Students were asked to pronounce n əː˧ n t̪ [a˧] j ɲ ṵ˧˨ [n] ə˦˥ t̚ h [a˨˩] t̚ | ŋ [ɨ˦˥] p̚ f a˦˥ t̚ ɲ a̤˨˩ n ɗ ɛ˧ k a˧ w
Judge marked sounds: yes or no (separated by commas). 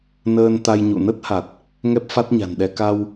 yes, yes, yes, no